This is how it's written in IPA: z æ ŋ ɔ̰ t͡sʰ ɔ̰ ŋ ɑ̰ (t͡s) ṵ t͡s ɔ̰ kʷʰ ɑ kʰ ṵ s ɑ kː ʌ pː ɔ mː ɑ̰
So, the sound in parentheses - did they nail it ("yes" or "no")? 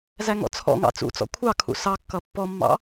yes